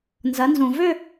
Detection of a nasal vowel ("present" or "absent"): present